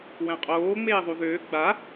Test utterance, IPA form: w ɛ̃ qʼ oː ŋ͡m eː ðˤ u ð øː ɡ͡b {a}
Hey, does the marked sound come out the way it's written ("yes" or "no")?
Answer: yes